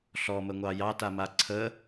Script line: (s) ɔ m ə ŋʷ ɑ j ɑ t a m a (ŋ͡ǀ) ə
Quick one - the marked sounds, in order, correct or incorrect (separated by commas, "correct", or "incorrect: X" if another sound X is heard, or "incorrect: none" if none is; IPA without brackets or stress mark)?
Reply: incorrect: ɬ, incorrect: ǀʰ